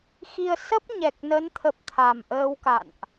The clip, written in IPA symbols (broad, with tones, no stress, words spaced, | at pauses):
xi˧ə̯sə˦˥p̚ ɲɛ˨˩k̚nə˨˦nt̪ʰə˨˩p̚ t̪ʰa˨˩mʔəː˧wka̰˧˨nʔ